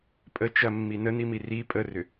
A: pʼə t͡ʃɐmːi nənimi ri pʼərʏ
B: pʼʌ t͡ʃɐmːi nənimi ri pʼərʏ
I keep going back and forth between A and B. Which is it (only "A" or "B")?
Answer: A